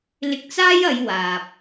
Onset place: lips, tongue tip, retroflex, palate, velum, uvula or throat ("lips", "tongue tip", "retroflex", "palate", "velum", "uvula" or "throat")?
tongue tip